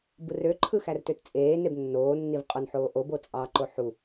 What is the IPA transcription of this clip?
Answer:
b ɯ r ø ǃʰ ɯ x æ r t ø t t͡sʼ eː n e b nː oː nː i v qʼ o n ħ oː ʔ o b o t͡sʼ ɑ ǃ o ħ u

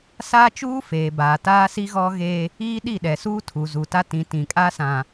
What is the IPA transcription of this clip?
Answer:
s aː˦ t͡ʃ uː˦ f eː˨ b aː˨ t aː˦ s i˦ ɣ ɔ˦ ɣ eː˦ | iː˦ ɗ i˦˨ ɗ ɛ˨ s uː˦ tʰ u˨ z u˨ t a˦ t ĩ˨˦ t ĩ˨ kʼ a˦ s ã˨

